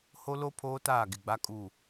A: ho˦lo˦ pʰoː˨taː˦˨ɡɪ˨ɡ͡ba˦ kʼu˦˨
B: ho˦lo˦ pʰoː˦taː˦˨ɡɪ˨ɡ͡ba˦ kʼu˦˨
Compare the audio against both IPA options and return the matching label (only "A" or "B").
B